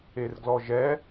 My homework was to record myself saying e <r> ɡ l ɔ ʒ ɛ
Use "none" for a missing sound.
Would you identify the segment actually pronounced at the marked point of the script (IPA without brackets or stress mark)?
r